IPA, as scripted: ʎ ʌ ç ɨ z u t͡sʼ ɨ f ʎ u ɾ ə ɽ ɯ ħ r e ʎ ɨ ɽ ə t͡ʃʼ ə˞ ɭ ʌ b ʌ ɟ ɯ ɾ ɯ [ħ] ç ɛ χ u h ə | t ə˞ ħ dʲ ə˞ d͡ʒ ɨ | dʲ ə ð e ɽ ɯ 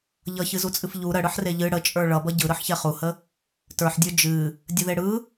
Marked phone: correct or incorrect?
correct